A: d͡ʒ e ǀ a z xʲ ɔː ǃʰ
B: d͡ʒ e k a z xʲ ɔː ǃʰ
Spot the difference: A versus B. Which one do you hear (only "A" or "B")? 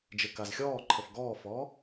B